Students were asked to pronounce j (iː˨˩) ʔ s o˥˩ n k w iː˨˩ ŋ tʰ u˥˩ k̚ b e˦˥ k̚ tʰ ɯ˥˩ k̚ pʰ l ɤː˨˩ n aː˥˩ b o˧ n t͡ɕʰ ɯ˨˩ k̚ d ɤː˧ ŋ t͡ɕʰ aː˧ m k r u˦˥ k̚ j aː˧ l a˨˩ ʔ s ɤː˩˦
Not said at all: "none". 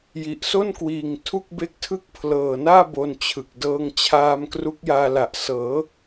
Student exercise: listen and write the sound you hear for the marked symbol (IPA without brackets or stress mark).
i˨˩